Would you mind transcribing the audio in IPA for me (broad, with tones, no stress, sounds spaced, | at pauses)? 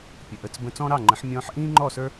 pʲ ə˩ ʔ ə˩˥ t͡s b ə̃˧ t͡s ɔ̃˥ ɾ ɑ˥˩ ŋ͡ǃ ə̃˩˥ ħ mʲ ɔ̃ː˧ ħ ʔ ĩː˥ ŋ͡ǃ ɔ˥˩ s ə˞˥